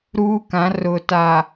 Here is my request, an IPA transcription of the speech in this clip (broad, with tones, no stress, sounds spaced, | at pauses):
ɾ uː˦ k ã˨˦ r ʊ˨ t a˨